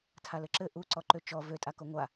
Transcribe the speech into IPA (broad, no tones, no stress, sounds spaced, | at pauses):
tʰ a l ɘ ǁ ɘ ʔ u ǀ ɔ ǃ ø t͡ʃ ɔ v ø tʼ a k o ŋʷ a